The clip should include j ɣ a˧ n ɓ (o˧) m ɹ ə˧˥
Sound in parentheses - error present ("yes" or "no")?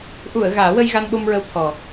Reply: no